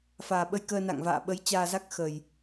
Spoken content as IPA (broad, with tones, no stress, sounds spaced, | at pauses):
f aː˨˩ ɓ ə˧ j k əː˧ n a̰˧˨ ŋ v a̰ː˧˨ ɓ ə˨˦ j t͡ɕ aː˧ z a˦˥ k̚ x ə˨˩ j